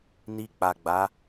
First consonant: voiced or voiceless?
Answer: voiced